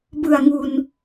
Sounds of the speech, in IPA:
bɯ˨˩a̯ŋu˨˩n

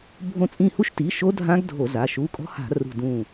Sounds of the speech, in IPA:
bʱõ˧˩t͡sʼĩ˧˩hu˦˥ʃti˩˧˩ ʃo˦˥dʱã˦˥ɡ dʱo˧˩˧za˩˧˩ ʃu˩˧˩kʼɔ̤˦˥ha̤˧˩˧ rṳ˧˩dũ˧˩

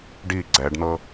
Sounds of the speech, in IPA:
ɖi ɡ͡ǀɛɖn̪ɤ

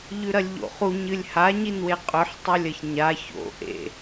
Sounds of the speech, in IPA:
ʎʉɾɐlʲʎo̰χu ɲɨlʲhaɲinwe qʼɵħtˤulʲɐç ɲa ço̰ ʔḛ

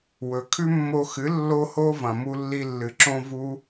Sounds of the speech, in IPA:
wɵ˨ kʰʉ˦mːo˧xɨ˨˦ lːo˦ho˦ vɐ̃˨mu˧lːi˧lːɨ˨ ǁõ˧ vu˦

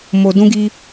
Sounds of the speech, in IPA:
mo˨dũ˧ɡi˧

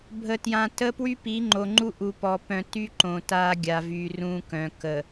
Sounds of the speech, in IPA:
bʱə˨tjã˨ tə˦ pwy˦pi˨˦ŋ͡ǃo˨ŋ͡ǃu˦ ʔu˨pɔ˨ pœ̃˨ty˦ ǃõ˨ta˦ɡʲa˨vy˨ rũ˦kœ̃˨ kə˨

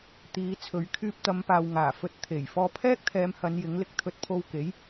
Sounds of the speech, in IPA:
t̪iː˨˧t͡sʰɵ˨˧ɥ kʰyː˧p̚t̪ɐ˨˧m paː˨w ŋaː˨˩fɵ˧t̚ t̪ʰe˨˩j fɔː˧pʰɛː˥k̚t̪ʰɛː˨˧mhɐ˨˧n jɪ˨˥ŋlɪ˨k̚ t̪ʰɵ˧t̚pʰo˧wke˨˥j

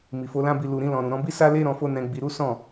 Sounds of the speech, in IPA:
mi˨fo˧lã˦bi˧ lu˨ɾĩ˧ lɔ̃˨ɾũ˨ɾɔ̃˧bi˦ sa˦le˦ɾɔ̃˧ fo˦nɛ̃˧ɡ͡bi˧ɾu˦ sɔ̃˦˨

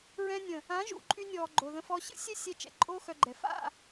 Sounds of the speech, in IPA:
ɹɛ̃˧nʲə̃˨ | ã˨˦ʒṵ˨ǃʼy˧nʲɔː˨ ɡ͡ǃo˨ðə̃˧fɔ˧ ɕə̰˦ sʲɛ˦sʲɛ˧ t͡ʃɛ̰˨ǃʼo˦xœ˧ɡ͡ǃɛ˨ fa̰˦˨

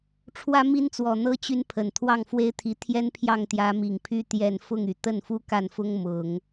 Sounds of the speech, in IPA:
ʈ͡ʂʰwä˥mi˥nt͡swɔ˨˩n̪ɤ˥ t͡ɕy˥npʰə˨˩n t̪ʰwɑ˥˩ŋfwe˥ɪ̯t̪ʰi˧˥ t̪ʰjɛ˥npʰjɑ˥˩ŋt̪jä˧˥ mi˨˩ŋpʰy˥˧ t̪jɛ˥˧n fʊ˥˩ŋy˨˩t̪ə˥˩n fu˥ka˥˩nfʊ˥ŋ mʊ˨˩˦ŋ

